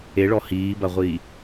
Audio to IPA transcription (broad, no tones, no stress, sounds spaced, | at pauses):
e ɭ ɔ h iː b ɐ ʁʷ iː